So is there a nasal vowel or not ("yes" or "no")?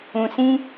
yes